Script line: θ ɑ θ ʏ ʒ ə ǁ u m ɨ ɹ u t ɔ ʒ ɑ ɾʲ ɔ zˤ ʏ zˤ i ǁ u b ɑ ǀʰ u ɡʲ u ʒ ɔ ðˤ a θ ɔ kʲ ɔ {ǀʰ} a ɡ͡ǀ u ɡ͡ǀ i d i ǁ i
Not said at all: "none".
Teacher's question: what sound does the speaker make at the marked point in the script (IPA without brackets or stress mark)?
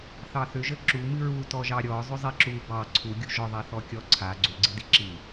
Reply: ǀʰ